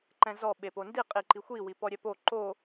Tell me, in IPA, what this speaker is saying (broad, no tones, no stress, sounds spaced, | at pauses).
ǃ ɛ̃ z ɔ ɓ e p o n d i qʼ i ǃ i xʷ i w i p ɔ ɾʲ ɛ p o ǃ o